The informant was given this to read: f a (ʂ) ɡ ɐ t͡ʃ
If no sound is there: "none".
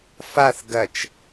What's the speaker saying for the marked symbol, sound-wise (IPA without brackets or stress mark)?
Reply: θ